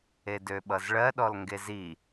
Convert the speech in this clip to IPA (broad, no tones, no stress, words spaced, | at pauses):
edøɓʌzɭɜ ɗɔlŋɡezi